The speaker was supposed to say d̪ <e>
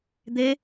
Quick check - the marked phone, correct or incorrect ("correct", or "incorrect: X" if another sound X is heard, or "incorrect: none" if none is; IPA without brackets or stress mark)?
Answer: correct